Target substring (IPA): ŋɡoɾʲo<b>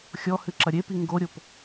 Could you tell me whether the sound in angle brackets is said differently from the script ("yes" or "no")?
yes